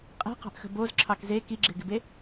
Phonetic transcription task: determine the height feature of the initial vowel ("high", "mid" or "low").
mid